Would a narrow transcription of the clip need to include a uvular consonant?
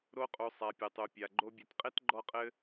yes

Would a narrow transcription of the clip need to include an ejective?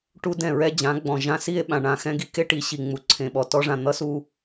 no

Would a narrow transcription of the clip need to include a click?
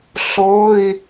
no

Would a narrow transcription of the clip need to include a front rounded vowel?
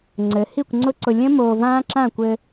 no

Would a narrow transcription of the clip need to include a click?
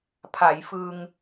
no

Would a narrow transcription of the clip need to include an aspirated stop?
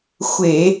no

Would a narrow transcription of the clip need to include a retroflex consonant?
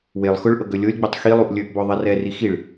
yes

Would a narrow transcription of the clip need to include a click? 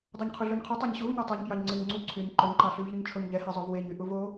yes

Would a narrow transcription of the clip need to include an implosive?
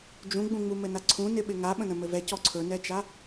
yes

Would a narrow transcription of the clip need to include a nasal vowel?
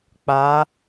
no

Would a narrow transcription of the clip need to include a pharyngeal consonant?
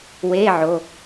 yes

